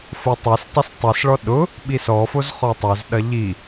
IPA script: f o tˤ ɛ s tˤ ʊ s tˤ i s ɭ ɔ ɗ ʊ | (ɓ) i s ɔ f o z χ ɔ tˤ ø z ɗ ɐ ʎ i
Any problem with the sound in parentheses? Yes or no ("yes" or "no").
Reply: no